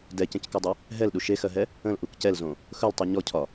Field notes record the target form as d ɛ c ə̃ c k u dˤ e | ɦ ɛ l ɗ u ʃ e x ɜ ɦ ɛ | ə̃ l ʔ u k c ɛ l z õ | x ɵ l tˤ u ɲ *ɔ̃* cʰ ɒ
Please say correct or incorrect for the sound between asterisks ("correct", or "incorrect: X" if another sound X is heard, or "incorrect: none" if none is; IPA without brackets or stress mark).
incorrect: ɔ